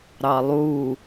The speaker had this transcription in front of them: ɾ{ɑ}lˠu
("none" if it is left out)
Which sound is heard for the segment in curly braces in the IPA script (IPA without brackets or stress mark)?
ɑ